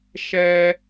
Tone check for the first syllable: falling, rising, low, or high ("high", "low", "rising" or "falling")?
high